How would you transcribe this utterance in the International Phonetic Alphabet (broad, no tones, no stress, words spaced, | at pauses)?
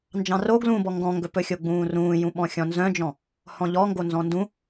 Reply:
nd͡ʒɑ̃ro ɡlũbɔ ŋɡɔ̃ŋɡɵpɵ xʲoɡ͡bũːrũːjũ ɓɔ̃xʲɔ̃nzœ̃d͡ʒɔ̃ | hɔ̃ʎɔŋɡo nzɔ̃ndũ